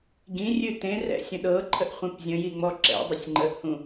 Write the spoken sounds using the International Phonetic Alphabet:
ɡ ĩ rʲ ʉ t ẽ r ɛ̰ sʲ ə̃ ɗ ɤ ǃʰ ə ʔ χʷ ẽ p zʲ ə̃ j i ŋ͡m ɔ ǁ ɛ̰ dˤ ə sʲ ŋ͡ǃ ə ʔ h ũ

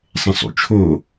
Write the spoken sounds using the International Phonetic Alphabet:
sˤ ẽ sˤ ṵ t͡ʃʰ o

